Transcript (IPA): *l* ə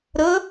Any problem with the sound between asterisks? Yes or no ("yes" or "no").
yes